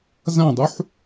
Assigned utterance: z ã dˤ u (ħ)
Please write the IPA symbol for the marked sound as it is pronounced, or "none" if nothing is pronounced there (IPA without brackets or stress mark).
ħ